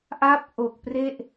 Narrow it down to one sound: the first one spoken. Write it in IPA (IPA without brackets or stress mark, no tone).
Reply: ʔ